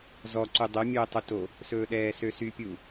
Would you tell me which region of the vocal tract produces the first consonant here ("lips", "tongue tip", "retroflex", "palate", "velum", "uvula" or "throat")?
tongue tip